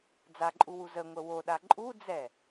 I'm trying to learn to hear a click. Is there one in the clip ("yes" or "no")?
yes